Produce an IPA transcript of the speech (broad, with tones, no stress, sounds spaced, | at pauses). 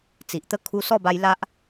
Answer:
t͡s i˨ ʔ t̪ ə˦ kʰ u˧ s ɔ˥˧ b a˧ j l a˦ ʔ